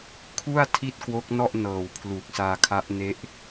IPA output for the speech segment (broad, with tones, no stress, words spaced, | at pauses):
kʰu˥˩a̯ tʰi˥˩t̚kwo˦˥k̚nɔ˥˩ʔ nɤː˨˩wpʰlu˨˩k̚ saː˧kʰa˦˥ʔne˦˥ʔ